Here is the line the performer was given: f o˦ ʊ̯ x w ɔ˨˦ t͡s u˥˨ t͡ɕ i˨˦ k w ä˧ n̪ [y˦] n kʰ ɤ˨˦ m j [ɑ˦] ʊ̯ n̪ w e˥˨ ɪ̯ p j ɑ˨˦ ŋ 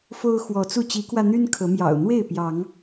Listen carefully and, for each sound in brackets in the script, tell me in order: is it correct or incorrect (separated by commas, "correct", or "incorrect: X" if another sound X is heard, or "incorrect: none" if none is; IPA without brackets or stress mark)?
correct, incorrect: ɑ̰˨˩